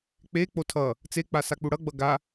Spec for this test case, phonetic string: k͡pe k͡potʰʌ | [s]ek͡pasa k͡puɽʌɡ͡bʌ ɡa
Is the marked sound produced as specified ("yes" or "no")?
no